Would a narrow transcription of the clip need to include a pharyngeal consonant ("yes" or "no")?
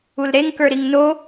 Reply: no